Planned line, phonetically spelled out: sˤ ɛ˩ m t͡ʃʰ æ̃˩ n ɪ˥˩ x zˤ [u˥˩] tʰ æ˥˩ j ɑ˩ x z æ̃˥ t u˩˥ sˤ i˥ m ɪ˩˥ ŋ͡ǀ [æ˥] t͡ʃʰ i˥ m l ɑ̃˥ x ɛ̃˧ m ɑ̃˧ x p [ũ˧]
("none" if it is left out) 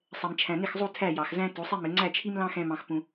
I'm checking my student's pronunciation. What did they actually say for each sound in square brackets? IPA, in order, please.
u˥˩, æ˥˩, ũ˧

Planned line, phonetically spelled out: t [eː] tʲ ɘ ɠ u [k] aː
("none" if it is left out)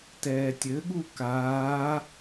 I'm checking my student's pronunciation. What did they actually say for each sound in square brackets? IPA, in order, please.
ɛː, k

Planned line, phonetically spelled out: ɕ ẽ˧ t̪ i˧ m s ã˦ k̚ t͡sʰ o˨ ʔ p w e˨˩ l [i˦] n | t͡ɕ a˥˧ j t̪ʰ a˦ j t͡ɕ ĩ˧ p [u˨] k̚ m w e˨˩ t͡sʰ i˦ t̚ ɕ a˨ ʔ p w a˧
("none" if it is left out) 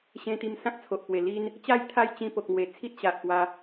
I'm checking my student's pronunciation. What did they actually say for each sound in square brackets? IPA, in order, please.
i˦, o˨

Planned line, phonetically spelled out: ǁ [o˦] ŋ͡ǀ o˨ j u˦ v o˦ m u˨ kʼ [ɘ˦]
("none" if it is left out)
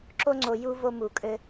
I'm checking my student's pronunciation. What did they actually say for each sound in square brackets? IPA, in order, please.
o˦, ɘ˦

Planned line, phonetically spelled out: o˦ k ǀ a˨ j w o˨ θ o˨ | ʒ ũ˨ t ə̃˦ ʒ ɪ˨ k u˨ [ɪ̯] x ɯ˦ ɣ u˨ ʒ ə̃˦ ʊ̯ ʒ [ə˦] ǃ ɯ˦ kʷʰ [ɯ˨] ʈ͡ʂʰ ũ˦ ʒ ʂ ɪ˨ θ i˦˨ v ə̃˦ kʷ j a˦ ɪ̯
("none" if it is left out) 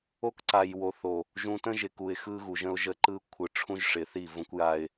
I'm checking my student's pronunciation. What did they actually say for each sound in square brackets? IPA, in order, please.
ɪ̯, ə˦, ɯ˨

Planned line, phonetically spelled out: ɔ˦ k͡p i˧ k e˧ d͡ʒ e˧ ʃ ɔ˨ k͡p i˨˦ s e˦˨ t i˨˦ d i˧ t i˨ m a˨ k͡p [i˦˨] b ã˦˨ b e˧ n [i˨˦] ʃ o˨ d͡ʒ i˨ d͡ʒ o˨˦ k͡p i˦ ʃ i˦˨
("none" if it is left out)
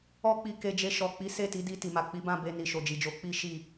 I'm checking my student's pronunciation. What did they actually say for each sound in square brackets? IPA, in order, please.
i˨˦, i˨

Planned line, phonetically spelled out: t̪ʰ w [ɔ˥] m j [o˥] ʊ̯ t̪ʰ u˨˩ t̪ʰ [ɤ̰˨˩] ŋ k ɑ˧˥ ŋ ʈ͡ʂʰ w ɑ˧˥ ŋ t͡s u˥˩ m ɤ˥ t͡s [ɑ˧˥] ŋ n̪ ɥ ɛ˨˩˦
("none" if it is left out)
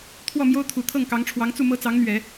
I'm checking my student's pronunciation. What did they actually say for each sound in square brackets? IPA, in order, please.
ɔ˥˩, o˥, ɤ˥˩, ɑ˧˥

